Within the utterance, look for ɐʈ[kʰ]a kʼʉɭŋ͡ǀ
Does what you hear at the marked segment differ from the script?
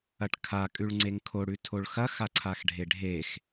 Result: no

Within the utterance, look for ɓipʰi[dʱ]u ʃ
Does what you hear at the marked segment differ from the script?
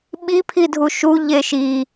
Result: no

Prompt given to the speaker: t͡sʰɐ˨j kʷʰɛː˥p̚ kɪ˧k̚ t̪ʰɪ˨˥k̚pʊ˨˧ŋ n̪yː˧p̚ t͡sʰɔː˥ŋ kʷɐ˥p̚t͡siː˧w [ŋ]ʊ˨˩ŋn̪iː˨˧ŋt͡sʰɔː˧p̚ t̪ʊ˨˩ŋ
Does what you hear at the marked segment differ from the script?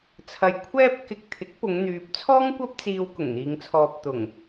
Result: yes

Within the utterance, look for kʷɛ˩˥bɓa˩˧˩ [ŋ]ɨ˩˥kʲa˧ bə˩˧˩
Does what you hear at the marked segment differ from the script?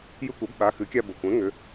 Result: yes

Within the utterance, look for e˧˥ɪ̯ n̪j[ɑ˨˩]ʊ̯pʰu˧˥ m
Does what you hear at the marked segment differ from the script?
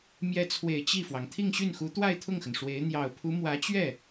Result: no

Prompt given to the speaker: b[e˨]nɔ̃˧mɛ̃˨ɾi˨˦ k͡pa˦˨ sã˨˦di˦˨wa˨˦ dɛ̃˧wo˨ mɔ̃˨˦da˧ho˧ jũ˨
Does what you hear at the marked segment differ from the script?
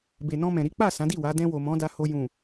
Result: no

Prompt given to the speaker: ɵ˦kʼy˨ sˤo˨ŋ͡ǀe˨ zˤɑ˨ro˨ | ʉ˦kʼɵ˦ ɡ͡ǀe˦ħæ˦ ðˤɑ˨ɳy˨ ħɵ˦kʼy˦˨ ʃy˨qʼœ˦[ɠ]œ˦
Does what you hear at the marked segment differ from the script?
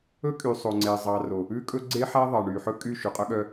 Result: no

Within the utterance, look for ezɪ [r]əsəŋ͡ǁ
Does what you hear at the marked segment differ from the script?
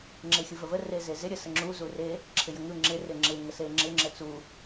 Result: yes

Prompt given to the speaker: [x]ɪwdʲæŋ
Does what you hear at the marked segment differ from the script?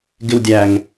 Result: yes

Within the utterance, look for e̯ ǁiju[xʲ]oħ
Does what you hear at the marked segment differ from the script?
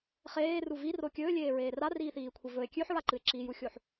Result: no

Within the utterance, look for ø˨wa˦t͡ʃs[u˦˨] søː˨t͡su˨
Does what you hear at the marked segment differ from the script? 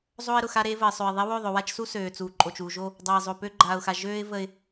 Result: yes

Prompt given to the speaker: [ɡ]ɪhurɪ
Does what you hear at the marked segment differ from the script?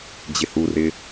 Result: yes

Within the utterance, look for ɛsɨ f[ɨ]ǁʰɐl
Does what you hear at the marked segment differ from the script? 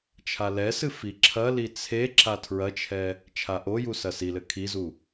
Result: yes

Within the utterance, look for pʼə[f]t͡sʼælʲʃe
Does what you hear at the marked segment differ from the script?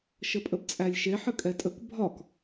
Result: yes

